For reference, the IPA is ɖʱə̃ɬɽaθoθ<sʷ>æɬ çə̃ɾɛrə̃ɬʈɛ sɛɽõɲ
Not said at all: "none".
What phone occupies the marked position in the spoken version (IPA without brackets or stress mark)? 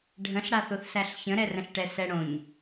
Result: s